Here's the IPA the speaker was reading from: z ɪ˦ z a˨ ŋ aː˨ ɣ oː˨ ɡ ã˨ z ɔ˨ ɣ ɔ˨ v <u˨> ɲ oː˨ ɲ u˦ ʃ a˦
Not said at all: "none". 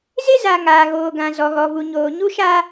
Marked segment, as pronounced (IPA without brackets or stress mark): u˨